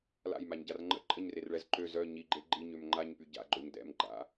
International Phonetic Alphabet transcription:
l a̰ j m a ɲ ɟ a r ŋ͡ǃ ə̰ ǃʼ ə ɲ r e r ɭ ɛ z ǃ ø z œ ɲ i ɡ͡ǃ e ɡ͡ǃ i ɲ ø m ŋ͡ǃ a ɲ p y ɟ a̰ ɡ͡ǃ o ɲ d ɛ̰ m ɡ͡ǃ a̰

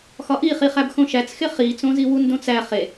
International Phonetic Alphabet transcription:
x ɒ ʔ i χ i χ æ b x õ ʃ æ t͡s x e χ i t͡s õ z i w u n d õ t͡s æ χ e

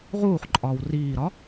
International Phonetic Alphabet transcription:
ʁ uː χ ǃʼ ɒː w r iː ɾ ɒ

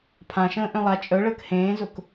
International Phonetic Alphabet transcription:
pʰ ã ʃ ə̃ː ʔ œ̃ lˠ a t͡ʃʼ œ ɭ əː k h ẽː z ʊ k

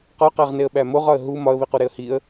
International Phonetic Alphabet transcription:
q ɒ q æ ʁ n e ə̯ ɓ æ m o ʁ ɒ ə̯ ɦ u m ɒ ə̯ β i q u ɾ e ə̯ h i ə̯

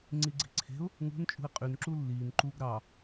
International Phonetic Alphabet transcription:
ŋ͡ǀ i ɡ͡ǀ i̤ ǀʰ e̤ ʊ̯ | ŋ ṳ n t͡ʃʼ ṳ ɪ̯ qʼ y n ǁ u lː iː n ǃ u ɡ ɾ ɑ

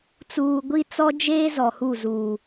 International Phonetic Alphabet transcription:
t͡s uː˨ ɡʷ i˦ t͡s ɔ˦ d͡ʒ eː˦ z ɔ˨ h u˦˨ z uː˨

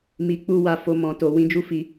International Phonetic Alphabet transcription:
m i˧ k͡p u˦ w a˧ f o˧ m ɔ̃˧ t o˧ w ĩ˦ d͡ʒ u˦ f i˦

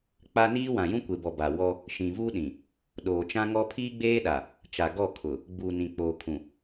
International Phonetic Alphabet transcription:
k͡p a˦ n iː˦ w ã˨ j ũ˦ kʷ e˨ b ɔ˨ b a˨ w ɔ˦ | ʃ ĩ˨ v uː˦ ɗ ĩ˨ | ɗ oː˨ t͡ʃ ã˦ ŋ ɔ˦ pʰ iː˦ ɡ͡b eː˦ ɗ a˨ | t͡ʃ a˨ ɡ ɔ˦˨ kʰ ʊ˨ | ɡ͡b uː˨ n ĩ˨ k͡p oː˨ kʰ ũ˨

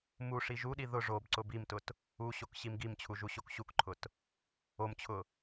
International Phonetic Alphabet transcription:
m u ʂ i ʒ u ɗ i ð ʊ ʐ o b ǀ ʊ b i m t ʊ t | u ɕ o k ɕ i m ɡ i m t͡ɕʰ u ʒ u ɕ o k ɕ u k ǃʰ ʊ t | o m t͡ɕʰ ʊ

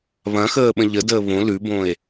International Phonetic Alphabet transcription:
β ɐ̃ x əː ɓ ə̃ ʎ ə d əː β õ l ʉ b õ e̯

